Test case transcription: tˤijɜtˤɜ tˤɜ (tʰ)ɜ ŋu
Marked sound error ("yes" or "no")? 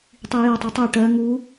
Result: yes